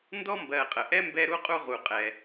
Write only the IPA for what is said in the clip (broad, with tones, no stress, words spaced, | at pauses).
ndɔ˥mbɜ˨qʼə˩ʔɛ˥ mbɛ˦ɾu˥qʼu˦ʁu˨ qʼɛ˨